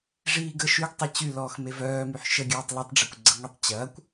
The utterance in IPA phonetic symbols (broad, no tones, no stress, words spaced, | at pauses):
ʐiːɡə ʃyɡtˤe t͡ɕylɔːx mevœːmyħ ʃəɡʲœːtˤ lytˤɖ͡ʐøkʷɡ͡ǀəŋʷitˤ t͡ɕɐːkʷ